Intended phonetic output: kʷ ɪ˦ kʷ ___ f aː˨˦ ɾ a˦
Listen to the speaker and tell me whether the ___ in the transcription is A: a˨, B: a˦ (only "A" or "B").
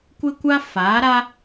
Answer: B